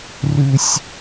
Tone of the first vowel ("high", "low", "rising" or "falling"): low